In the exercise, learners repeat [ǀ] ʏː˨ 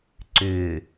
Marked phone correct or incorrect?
correct